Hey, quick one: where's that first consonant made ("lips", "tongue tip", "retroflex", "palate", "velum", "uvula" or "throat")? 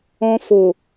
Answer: lips